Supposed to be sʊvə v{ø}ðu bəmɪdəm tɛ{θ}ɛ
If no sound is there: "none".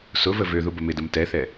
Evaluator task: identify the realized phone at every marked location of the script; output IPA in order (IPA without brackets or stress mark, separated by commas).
ø, θ